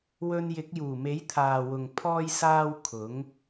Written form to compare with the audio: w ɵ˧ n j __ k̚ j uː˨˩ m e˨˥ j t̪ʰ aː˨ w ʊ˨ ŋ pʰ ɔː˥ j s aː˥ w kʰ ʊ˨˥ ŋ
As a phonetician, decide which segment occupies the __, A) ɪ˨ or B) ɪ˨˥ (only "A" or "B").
B